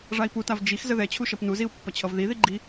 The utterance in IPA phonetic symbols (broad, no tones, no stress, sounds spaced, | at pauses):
ʐ a i̯ p u t a v d͡ʒ i x z ə ð ɛ t͡ɕʰ u ʃ ʌ p n u z i u̯ pː ʌ t͡ɕʰ ʌ v ð i ð i ɡ͡ǃ i